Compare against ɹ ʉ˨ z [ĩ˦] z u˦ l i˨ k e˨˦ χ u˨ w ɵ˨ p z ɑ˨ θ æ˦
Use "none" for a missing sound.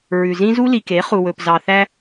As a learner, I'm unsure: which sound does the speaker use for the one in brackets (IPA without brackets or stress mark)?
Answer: ĩ˦